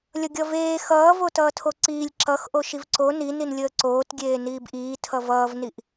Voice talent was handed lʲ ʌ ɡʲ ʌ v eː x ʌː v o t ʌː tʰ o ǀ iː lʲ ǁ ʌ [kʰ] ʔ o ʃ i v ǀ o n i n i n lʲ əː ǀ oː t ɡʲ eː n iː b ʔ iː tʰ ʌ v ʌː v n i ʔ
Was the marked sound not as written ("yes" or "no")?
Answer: yes